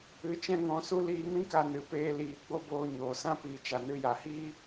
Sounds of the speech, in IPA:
ɨ˧ t͡ʃɛ̃˦ŋɔ̃˧su˦ liː˧mĩ˦ka˧ nɨ˨peː˦liː˧ ɡ͡bo˦boː˧ɲoː˨sã˦ piː˨t͡ʃa˨nɨ˧ja˨ hiː˦

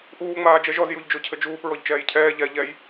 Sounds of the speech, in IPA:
ʔuː ŋ͡maːd͡ʒɛʒɔz juʎd͡ʒocʰɘd͡ʒuːp ɹɔʎt͡ʃɛːjcʰɛː ʎɛ ʎɛj

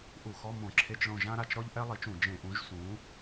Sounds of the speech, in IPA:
ʔu˧˩˧xɔ˧˥˧ mõ˧˩˧ ǁʰe˧˥˧t͡ʃɭõ˦˨ ʒã˥ɾa˦˨t͡ʃɾɔ˥ʎ ʔɛ˥lˠi˨˥t͡ʃũ˧˩˧ d͡ʒẽ˧˩˧ʔũ˨˥ʒ sũ˨˥

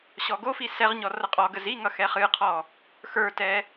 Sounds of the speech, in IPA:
ɕɔɡofi sɛʁɲɔ rʌqʼɔɡəz i ŋʌxɛχɨqʰɔ | xə˞tɛ

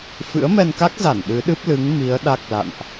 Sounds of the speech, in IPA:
fɨ̰˧˥ə̯mɛ˧nka˦˥k̚za˧˩n ɗɨ˨˦ɗɨ˦˥p̚lɨ˨˦ŋ mi˨˦ə̯ ɗa˦˥k̚la̰˧˨nʔ

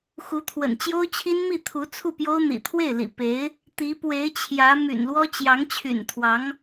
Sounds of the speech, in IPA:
xu˧˥t̪ʰwə̰˨˩nt͡ɕjo˥ʊ̯t͡ɕʰi˥n mi˥˩t̪ʰu˧˥ t͡sʰu˥˩pjo˥ʊ̯n̪ḭ˨˩ t̪ʰwe˥˩ɪ̯lḭ˨˩ pe˧˥ɪ̯ | t̪i˧˥pwe˧˥ɪ̯t͡ɕʰjä˧˥ my̰˨˩nlwɔ˥ t͡ɕjɑ˧˥ŋt͡ɕʰy̰˨˩n t̪ʰwɑ˧˥ŋ

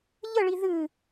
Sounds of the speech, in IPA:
ʎəɭi ðɨ

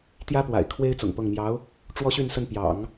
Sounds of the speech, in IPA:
t̪jä˥pwa̰˨˩ɪ̯ kʰwe˥ɪ̯ t͡sʊ̰˨˩ŋpɤ˥˩ŋ mjɑ˧˥ʊ̯ | ʈ͡ʂwɔ˥ɕy˥˧nsə˥˩n pjɑ̰˨˩˦ŋ

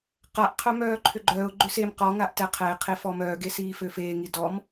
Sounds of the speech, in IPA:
qaʔqʰœ mœːǃʰʏɡ͡ǃœːʊ̯ ɡ͡ǃʏsem qɔŋaʔ tɛqʰɛɪ̯qʰe fɔmœːɡe siːføfeːŋi dɔm

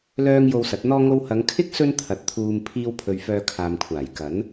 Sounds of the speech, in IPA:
lœː˧ŋ jo˧wsɐ˨˥t̚n̪ɔː˥ ŋo˧whɐ˨˧ŋkʰɪ˥k̚ sɵ˥nt̪ʰɐ˨˥t̚ t̪ʰuː˨m pʰiː˧wpʰɵ˨ɥ fœː˧kʰaː˨mkʷʰaː˨˩j kɐ˨˥n

